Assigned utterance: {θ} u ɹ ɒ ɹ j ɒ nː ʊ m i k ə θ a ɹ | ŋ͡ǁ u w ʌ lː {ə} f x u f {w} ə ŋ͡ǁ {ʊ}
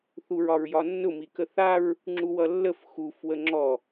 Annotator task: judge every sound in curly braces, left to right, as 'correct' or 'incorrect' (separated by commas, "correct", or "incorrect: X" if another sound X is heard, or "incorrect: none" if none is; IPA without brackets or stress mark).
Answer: correct, correct, correct, incorrect: ɔ